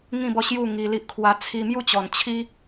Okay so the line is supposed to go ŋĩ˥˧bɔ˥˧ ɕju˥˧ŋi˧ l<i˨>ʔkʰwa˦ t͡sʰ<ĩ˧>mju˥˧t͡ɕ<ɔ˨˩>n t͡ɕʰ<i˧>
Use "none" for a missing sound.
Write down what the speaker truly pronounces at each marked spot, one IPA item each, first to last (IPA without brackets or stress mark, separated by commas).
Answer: i˦, i˧, ɔ˨˩, i˦